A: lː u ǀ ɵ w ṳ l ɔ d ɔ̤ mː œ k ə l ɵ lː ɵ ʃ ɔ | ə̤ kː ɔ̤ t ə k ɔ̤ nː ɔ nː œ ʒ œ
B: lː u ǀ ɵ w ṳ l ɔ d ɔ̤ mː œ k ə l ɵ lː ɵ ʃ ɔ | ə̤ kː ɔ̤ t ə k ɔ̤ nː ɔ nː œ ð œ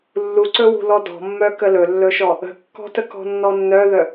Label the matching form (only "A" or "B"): B